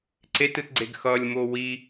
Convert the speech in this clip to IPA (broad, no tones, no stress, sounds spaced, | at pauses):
ǀ e t ɯ t ɡ͡ǀ e ɡ x ʌ lʲ m o w i